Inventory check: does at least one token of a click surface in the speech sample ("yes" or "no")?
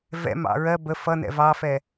no